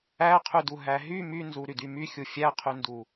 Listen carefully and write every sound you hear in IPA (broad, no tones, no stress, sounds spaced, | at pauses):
æ qʰ y d u ɦ æ ɦ y m y n z u ɾ y d y m y xʲ u fʲ æ qʰ y n d u